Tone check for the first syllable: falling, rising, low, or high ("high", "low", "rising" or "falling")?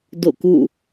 falling